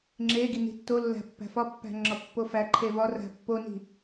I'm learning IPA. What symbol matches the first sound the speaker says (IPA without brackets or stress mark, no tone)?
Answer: ŋ͡ǁ